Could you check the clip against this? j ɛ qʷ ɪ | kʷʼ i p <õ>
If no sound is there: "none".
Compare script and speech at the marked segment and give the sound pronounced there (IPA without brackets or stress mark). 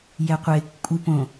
õ